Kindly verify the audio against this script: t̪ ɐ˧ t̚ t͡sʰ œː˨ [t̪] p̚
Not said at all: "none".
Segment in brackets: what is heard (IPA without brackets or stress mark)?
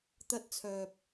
none